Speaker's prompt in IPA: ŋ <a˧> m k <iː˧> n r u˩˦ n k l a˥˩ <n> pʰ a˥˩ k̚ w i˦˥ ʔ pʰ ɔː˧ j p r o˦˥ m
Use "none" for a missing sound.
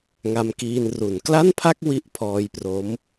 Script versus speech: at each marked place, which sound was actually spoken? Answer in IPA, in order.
a˧, iː˧, n

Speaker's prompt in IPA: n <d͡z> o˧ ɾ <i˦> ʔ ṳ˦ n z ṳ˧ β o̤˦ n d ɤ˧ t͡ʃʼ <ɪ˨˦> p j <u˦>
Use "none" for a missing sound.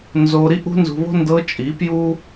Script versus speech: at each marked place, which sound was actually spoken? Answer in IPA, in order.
z, i˦, i˨˦, u˦

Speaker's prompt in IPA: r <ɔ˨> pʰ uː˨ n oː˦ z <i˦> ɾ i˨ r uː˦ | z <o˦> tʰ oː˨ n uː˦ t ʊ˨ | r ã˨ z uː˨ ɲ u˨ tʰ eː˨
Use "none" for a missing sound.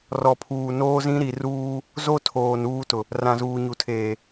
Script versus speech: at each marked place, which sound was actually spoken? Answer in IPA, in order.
ɔ˨, ĩ˦, o˦

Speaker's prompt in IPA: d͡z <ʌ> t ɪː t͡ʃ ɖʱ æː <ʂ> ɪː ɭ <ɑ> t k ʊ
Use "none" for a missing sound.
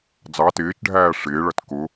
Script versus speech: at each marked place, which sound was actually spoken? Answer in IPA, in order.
ɑ, ʂ, ʌ

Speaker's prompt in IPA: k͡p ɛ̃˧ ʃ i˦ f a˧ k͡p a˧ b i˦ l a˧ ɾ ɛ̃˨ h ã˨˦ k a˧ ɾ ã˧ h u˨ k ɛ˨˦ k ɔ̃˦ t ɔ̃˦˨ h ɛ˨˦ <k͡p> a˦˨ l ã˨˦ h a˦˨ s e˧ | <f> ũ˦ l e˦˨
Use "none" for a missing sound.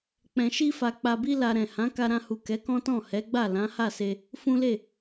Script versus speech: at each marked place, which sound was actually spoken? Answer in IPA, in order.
ɡ͡b, f

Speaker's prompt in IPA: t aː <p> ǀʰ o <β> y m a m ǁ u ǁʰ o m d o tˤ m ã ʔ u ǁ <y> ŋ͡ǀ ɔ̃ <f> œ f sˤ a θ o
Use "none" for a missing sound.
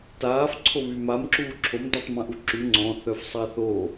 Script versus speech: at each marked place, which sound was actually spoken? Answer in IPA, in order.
f, β, y, θ

